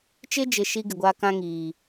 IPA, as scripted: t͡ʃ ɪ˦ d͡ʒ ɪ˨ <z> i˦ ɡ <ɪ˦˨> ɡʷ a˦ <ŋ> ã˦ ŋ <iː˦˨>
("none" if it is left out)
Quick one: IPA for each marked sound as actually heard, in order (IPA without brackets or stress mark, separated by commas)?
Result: ʃ, ɪ˨, k, iː˨